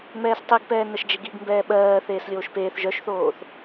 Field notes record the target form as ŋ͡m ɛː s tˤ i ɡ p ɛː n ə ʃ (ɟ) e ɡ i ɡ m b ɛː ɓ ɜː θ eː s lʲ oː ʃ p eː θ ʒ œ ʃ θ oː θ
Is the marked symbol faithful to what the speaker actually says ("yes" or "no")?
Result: no